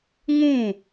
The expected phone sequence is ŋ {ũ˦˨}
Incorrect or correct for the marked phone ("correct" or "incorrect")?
correct